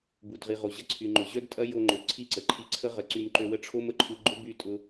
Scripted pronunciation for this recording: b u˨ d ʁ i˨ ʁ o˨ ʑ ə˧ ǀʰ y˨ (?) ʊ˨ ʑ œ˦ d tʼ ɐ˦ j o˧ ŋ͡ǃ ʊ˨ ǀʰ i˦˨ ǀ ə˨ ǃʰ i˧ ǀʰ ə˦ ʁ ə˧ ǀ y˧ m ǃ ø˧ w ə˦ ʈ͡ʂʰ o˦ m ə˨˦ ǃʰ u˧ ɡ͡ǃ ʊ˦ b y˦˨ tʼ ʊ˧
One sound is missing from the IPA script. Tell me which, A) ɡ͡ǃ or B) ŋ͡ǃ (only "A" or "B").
B